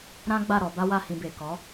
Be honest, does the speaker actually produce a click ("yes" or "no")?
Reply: no